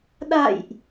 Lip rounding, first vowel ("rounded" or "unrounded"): unrounded